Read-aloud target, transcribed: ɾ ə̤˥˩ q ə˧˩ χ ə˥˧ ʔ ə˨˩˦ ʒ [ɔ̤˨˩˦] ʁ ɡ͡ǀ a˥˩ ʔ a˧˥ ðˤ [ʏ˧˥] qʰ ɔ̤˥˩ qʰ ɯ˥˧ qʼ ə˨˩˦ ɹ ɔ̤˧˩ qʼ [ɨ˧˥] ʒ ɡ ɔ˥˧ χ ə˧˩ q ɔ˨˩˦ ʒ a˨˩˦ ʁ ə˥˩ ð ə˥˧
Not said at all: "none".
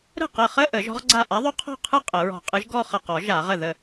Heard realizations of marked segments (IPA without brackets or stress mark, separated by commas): ɔ̤˧˥, ʏ˧˥, ɨ˧˥